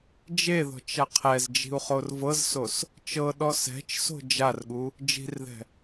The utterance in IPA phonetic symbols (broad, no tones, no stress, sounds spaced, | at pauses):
d͡ʒ e ð ɔ̤ t͡ʃ a qʰ ɛ z d͡ʒ i̤ u̯ χ o r v ɤ z s o s | t͡ʃ ɤ ɗ ɔ s ɛ̤ t͡ʃ s o̤ d͡ʒ a r ɠ u | d͡ʒ i̤ r ð ɛ̤